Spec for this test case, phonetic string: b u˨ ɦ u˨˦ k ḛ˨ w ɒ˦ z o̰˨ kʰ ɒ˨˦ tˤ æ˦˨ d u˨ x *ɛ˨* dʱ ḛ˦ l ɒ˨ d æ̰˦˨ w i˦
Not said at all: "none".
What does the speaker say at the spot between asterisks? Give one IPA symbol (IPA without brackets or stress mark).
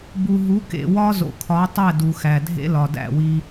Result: æ˨